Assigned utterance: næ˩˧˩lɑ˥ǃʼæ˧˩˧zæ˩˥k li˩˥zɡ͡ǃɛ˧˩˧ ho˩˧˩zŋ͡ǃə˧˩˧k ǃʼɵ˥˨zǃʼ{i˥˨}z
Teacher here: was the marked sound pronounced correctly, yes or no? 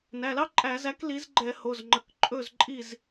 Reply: yes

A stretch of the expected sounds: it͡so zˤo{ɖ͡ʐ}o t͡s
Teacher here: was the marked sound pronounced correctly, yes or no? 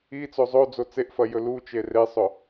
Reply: no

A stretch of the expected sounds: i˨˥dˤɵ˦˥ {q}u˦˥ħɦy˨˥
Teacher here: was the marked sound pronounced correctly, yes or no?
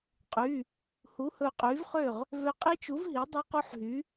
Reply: yes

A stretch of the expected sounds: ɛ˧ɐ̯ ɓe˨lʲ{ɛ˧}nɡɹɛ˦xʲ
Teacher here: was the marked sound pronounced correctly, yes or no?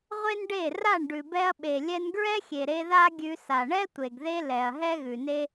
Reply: yes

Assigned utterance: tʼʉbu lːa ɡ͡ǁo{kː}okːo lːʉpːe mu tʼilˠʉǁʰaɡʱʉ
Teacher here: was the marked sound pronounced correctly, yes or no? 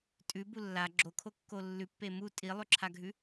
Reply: no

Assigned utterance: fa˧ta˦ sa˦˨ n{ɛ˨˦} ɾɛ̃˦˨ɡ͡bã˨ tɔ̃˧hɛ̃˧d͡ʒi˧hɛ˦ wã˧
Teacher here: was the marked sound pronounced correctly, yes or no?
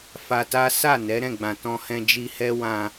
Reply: yes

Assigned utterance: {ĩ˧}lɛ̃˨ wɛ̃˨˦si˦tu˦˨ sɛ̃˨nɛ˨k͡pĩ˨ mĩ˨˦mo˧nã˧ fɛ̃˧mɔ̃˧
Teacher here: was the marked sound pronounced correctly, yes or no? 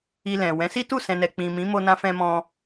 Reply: no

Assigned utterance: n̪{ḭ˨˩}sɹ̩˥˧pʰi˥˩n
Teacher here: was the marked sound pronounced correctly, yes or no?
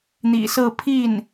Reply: yes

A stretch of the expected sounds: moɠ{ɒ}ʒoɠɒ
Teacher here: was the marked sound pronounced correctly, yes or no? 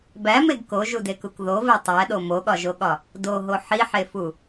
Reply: yes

